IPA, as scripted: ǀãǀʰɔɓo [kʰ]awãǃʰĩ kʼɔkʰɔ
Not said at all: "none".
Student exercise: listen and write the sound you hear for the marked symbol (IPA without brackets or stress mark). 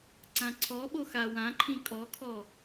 x